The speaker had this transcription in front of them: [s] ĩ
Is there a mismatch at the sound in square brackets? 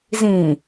yes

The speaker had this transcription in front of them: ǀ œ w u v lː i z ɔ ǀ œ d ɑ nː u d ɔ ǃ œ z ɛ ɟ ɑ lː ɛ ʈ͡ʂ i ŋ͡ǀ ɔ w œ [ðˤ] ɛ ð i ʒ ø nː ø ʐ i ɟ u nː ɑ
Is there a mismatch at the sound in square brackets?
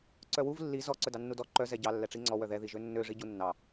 yes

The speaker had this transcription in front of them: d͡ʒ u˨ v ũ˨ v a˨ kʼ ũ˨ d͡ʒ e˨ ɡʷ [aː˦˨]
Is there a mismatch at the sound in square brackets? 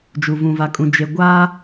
yes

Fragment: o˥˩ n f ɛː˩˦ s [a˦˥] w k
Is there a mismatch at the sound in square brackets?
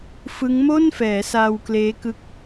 yes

